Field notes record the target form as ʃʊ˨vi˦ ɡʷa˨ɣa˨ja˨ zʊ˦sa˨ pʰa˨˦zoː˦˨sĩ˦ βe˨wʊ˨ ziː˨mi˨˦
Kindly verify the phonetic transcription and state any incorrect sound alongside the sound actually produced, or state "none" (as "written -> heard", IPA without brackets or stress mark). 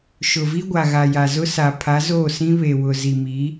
iː˨ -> i˨